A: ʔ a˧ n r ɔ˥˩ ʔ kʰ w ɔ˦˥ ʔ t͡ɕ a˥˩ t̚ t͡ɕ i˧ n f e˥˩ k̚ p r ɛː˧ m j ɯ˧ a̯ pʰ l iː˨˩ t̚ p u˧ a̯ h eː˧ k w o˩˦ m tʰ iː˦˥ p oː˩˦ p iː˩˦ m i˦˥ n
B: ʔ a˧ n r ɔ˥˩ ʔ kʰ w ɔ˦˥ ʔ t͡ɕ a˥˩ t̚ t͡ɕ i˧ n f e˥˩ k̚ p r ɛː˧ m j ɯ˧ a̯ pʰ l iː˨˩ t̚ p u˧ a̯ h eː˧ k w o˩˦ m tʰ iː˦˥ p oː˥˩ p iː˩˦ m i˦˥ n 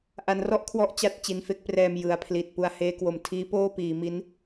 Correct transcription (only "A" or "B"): B